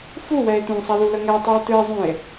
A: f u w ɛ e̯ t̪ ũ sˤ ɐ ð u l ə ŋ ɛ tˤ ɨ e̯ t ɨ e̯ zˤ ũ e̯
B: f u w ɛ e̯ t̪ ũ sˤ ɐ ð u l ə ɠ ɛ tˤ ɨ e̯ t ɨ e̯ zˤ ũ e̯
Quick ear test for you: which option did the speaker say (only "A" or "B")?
A